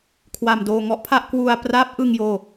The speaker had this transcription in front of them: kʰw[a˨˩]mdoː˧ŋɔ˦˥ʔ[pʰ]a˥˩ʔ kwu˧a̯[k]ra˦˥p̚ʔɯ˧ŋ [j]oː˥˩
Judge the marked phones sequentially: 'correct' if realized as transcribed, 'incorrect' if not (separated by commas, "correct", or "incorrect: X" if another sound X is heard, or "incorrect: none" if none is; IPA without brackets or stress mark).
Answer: incorrect: a˧, correct, incorrect: p, correct